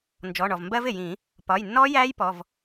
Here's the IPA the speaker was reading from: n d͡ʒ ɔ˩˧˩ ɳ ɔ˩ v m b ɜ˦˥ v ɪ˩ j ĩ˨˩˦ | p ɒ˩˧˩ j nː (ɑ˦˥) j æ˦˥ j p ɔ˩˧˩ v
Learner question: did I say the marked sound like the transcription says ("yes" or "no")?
no